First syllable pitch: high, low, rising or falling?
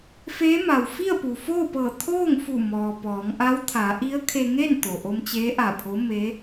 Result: rising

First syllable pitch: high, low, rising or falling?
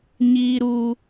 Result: high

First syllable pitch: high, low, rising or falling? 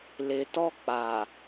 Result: low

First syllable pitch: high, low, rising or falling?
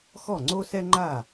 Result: falling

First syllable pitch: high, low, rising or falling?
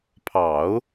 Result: low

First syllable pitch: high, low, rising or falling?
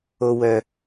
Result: high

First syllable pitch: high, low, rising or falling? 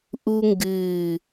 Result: high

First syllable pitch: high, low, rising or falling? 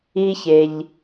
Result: low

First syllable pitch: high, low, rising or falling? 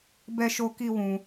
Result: high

